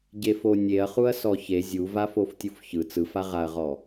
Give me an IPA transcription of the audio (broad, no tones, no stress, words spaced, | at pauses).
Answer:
ɟefonʲeɐ̯ χuɐ̯sɔçe zʲuva foftʲufçɯ t͡sɯfaʁaɐ̯ʁɔ